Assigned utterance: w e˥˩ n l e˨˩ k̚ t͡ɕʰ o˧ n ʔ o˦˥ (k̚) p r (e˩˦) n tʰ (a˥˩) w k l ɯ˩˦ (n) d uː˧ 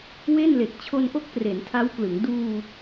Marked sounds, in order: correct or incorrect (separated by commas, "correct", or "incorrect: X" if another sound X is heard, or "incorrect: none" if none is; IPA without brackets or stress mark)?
correct, correct, incorrect: a˦˥, incorrect: ŋ